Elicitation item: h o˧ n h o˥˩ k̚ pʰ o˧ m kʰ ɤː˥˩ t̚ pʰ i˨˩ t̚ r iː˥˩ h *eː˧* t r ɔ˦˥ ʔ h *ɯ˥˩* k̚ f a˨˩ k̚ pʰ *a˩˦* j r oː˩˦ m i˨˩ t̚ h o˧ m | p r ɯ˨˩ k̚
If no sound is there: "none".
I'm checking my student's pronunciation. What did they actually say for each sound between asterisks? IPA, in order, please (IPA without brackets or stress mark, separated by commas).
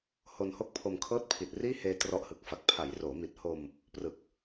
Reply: eː˧, ɯ˨˩, a˩˦